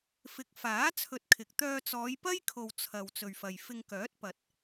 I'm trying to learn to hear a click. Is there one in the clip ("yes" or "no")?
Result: no